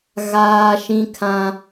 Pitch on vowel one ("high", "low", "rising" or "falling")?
high